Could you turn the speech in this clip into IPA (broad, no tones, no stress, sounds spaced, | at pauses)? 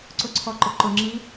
ǀ ʊ ǀʰ ɔ ǃ ʊ ǃ ʊ ŋ͡ǁ i